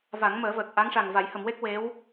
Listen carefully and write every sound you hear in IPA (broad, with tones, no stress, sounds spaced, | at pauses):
v a˨˩˦ ŋ m əː˨˩˦ v əː˨˩ k̚ ʔ a˧˥ ŋ ʂ a˨˩ ŋ v a˨˩˦ j h ə˨˩˨ m w e˦˥ k̚ w e˧˥ w